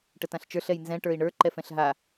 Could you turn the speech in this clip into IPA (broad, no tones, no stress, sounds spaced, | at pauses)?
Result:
ʈ ə t ã ɬ t͡ʃ ə˞ ɬ ɛ j n z ɛ̃ ʈ ə˞ i̯ ɳ ə˞ ǃ ɛ f ɛ̃ ɬ ɦ a